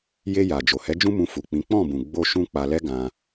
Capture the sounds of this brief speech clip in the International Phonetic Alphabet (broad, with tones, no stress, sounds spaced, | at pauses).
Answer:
j e˧ j a˨ d͡ʒ o˨ h ɛ˨˦ d͡ʒ ũ˦ m ũ˧ f u˨ k͡p ĩ˨˦ k͡p ɔ̃˦˨ b ũ˨ ɡ͡b o˧ ʃ ũ˧ k͡p a˧ l ɛ˦ ɡ ã˧